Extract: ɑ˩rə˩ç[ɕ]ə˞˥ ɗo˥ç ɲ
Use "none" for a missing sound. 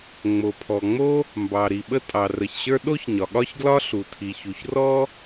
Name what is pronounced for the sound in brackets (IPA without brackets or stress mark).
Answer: ɕ